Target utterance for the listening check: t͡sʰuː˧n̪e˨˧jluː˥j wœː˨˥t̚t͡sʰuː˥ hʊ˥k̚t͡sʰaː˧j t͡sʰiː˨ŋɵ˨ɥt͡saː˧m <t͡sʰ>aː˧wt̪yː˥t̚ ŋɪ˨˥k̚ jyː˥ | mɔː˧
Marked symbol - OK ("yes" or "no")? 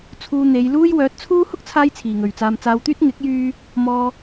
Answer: no